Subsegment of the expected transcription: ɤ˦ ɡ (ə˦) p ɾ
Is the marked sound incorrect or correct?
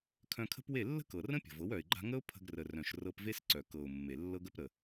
correct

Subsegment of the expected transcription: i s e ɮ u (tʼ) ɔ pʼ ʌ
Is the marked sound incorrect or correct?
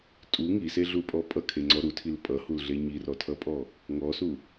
incorrect: pʼ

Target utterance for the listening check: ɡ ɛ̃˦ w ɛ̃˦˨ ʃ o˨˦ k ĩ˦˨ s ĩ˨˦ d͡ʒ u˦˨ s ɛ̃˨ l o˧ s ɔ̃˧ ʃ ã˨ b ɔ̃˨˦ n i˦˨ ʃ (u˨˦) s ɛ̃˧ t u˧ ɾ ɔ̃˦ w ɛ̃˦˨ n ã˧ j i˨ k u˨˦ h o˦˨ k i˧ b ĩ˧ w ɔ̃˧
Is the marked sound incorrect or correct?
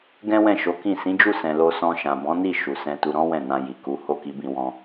incorrect: u˨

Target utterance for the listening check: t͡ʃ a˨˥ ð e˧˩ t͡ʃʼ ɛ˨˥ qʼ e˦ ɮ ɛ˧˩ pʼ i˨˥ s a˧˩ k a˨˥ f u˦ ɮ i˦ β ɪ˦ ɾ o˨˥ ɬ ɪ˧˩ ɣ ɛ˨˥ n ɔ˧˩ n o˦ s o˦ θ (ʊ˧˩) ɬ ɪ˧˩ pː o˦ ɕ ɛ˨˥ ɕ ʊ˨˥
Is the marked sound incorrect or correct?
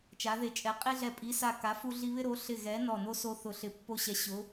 correct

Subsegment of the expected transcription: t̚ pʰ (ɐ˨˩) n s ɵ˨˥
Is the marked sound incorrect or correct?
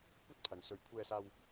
incorrect: ɐ˨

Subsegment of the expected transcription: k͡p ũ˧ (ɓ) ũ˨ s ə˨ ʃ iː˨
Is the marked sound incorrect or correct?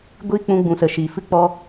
incorrect: ɡ͡b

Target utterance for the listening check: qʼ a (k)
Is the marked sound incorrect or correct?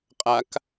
correct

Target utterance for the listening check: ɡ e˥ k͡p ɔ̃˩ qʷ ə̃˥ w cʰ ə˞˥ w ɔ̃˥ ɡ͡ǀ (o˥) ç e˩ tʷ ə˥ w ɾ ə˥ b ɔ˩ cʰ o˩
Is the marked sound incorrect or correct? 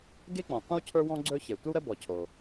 incorrect: ɵ˥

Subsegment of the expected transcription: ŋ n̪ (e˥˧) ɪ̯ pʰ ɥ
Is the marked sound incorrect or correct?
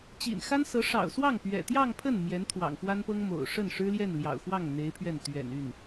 incorrect: e˧˥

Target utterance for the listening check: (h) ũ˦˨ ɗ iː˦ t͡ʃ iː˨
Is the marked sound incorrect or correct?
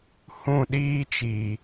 correct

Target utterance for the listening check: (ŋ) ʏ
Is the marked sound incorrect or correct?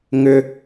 correct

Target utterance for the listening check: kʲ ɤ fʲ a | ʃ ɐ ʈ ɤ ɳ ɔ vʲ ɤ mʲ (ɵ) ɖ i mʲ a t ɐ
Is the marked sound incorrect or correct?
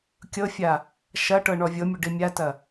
correct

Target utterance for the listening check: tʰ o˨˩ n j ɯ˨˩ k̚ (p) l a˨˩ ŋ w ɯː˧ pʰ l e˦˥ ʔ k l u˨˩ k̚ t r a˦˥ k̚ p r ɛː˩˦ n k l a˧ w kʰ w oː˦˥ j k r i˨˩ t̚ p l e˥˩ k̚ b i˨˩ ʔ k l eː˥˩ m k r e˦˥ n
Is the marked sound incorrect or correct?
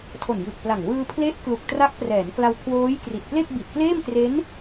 correct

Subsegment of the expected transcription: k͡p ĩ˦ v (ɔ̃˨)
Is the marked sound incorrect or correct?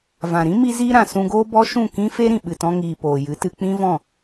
incorrect: ɔ̃˦˨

